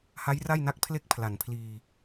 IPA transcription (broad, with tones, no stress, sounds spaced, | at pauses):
h a˦˥ j r a˥˩ j n a˦˥ k̚ pʰ l e˥˩ k̚ pʰ l a˨˩ n pʰ l iː˧